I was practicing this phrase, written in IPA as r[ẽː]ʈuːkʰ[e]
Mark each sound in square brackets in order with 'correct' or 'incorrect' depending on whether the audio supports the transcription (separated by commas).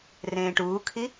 correct, incorrect